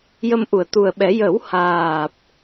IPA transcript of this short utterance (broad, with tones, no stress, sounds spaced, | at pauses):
j ə˧ m ʔ u˨˩˨ ə̯ t̪ u˨˩ ə̯ ɓ ɛ˨˩˦ j ə˨˩˦ w h aː˨˩ p̚